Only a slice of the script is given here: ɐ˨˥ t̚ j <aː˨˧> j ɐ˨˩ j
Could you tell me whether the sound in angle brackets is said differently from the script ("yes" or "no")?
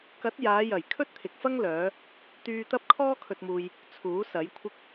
no